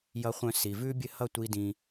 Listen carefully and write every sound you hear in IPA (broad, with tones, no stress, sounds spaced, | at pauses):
j ʌ˧ χʷ œ̃˧ s i˨ v ʉ˦ bʲ ɘ˦˨ h ʌ˦˨ tʷ i˦ d ĩ˧